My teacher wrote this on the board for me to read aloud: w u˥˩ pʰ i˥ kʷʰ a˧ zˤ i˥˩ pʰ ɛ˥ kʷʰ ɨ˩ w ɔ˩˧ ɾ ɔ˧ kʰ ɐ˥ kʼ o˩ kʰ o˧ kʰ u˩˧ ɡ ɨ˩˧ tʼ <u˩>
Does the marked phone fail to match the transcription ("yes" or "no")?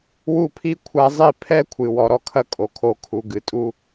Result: yes